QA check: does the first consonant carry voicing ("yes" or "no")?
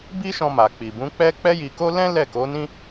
yes